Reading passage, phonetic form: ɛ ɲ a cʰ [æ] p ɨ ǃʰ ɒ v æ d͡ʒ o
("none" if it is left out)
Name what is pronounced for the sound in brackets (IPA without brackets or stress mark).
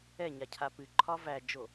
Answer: a